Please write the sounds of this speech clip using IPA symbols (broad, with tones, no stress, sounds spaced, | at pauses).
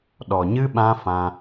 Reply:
ɗ ɔ˨ ɲ ɨ˦ ɓ ã˦ f ã˧